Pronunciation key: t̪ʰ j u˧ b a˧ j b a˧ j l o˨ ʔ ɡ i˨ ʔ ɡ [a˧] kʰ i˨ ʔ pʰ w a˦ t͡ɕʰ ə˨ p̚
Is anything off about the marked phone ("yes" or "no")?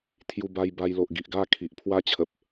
yes